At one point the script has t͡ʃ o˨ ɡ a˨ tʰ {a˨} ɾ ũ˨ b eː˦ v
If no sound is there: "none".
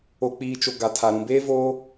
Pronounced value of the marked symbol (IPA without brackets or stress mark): a˨